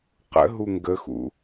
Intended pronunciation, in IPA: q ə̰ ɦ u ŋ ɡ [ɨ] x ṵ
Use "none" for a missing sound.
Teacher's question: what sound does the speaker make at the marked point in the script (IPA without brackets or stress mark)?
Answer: ə